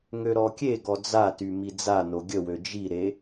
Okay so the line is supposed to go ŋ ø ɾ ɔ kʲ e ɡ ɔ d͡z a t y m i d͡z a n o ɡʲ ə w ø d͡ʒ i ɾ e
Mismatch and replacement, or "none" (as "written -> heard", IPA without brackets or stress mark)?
none